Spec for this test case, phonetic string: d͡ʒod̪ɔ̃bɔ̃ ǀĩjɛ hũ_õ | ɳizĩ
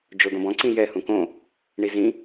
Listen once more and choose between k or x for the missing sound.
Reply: k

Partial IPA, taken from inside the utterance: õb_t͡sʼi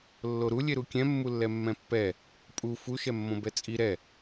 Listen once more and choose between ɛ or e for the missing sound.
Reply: ɛ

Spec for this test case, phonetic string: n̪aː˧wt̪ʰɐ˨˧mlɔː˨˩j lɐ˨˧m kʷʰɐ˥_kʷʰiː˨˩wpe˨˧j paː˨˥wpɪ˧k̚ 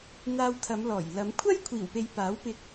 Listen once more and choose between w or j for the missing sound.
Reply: j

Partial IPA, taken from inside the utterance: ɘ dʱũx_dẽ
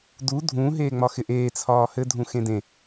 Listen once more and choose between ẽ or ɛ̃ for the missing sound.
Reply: ẽ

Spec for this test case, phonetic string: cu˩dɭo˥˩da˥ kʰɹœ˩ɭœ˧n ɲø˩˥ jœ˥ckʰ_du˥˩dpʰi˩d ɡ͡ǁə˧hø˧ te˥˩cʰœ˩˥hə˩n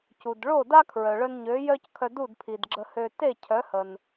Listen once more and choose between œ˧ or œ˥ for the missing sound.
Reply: œ˧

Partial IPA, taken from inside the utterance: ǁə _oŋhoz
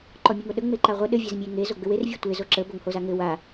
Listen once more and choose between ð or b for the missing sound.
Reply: b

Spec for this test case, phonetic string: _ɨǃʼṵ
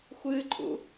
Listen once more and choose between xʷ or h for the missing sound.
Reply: xʷ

